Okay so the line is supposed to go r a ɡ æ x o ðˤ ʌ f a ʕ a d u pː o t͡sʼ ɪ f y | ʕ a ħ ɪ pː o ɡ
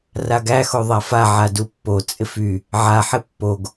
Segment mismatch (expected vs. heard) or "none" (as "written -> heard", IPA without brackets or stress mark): ʌ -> a